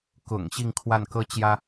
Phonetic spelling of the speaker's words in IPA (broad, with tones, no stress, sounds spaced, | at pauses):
k ʊ̰˨˩ ŋ ɕ i˥˧ ŋ kʰ w a˥˩ n k ɤ˥ t͡ɕ j ä˥